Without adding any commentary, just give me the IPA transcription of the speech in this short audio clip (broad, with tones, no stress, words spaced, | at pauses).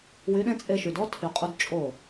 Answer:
wy˨˦ɗẽ˦t͡sʼe˧ʃy˨d ɔ˦ tʰy˨qʼu˧d t͡ʃʼo˦˨